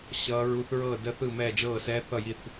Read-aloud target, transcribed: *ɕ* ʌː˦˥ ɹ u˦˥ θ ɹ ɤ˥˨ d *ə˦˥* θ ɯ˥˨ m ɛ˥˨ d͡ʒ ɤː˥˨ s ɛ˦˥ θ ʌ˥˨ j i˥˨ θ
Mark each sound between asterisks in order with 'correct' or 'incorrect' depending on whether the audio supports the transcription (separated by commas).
correct, correct